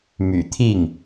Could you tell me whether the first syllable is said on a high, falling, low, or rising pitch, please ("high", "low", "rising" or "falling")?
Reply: low